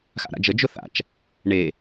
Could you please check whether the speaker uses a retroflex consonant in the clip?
yes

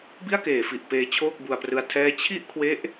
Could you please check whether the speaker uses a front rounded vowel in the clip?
no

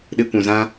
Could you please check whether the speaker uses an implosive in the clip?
yes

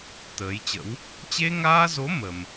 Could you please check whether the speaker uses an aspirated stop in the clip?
no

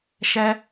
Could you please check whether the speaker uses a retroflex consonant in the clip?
no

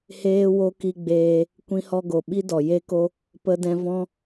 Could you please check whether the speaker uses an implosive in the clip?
yes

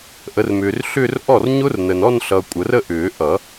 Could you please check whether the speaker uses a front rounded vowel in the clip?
yes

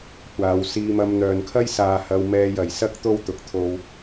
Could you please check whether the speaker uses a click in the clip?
no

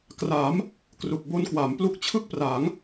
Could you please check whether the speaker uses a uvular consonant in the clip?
no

